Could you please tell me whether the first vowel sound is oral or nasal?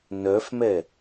oral